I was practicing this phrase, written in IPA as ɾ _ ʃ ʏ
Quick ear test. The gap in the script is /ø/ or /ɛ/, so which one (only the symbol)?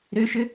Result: ø